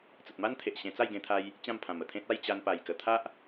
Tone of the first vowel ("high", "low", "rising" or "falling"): low